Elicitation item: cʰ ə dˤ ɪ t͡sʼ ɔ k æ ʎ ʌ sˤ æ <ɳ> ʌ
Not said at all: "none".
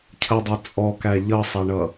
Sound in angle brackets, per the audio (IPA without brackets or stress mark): ɳ